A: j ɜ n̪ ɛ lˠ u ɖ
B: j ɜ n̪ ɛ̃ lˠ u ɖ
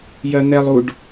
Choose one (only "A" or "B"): A